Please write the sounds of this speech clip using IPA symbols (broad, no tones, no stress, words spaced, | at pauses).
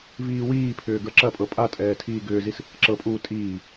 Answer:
viːwiːpʰʏː ɡə˞ǁɐpʼɤ pʼatʼɛː tʰiːɡʏːzis | ǁɤpʼuː tʼiː